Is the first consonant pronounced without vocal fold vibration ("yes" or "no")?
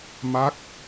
no